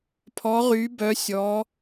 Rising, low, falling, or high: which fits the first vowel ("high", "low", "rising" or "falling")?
rising